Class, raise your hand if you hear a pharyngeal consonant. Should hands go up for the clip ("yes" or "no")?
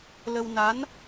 no